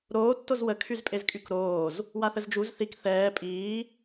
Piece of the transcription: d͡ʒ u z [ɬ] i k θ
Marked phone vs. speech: incorrect: θ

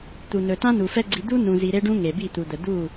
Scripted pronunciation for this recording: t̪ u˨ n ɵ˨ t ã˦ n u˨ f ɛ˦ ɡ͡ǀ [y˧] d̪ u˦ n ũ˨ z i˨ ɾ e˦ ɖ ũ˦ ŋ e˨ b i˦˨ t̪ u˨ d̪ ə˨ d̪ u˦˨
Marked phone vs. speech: incorrect: i˧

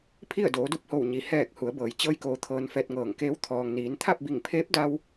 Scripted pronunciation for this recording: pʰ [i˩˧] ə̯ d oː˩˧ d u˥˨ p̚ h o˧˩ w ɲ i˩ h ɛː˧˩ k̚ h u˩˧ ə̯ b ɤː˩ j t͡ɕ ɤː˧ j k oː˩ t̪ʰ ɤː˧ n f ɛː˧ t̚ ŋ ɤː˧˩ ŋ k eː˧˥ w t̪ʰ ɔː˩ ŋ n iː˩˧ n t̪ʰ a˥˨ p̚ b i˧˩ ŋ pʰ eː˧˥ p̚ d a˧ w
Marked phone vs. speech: incorrect: i˥˨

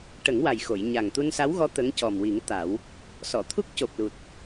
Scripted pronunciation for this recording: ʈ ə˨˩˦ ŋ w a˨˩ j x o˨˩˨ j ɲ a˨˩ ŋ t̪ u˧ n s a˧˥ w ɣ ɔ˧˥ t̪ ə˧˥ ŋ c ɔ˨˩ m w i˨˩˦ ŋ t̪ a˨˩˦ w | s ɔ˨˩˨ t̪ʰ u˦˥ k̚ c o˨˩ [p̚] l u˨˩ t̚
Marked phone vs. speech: correct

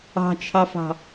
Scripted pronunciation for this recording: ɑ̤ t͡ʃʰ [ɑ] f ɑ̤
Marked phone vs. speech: correct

